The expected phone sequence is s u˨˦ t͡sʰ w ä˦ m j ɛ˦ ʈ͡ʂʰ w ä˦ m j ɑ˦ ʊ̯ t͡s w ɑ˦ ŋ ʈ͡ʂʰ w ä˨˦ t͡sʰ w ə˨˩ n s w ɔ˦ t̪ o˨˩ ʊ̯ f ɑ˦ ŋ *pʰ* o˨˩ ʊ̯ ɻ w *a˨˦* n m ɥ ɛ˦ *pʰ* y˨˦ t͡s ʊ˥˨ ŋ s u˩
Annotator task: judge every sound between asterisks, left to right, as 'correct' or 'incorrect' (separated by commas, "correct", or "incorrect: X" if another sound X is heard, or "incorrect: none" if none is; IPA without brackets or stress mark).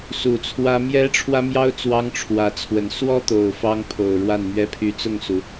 correct, incorrect: a˥˨, correct